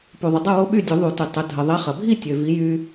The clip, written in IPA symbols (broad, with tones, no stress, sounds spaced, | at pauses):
p u˨ ðˤ ə˨ dˤ ɐ˥˨ w o˦ ɓ y˥˨ dʲ u˨˩˦ ðˤ u˨˩˦ t y˨ tˤ ə˨˥ dʱ ə˨ ðˤ e˨˥ χ ɐ˨ bʱ i˥˨ tʲ ø˨ v i˨˥ j y˦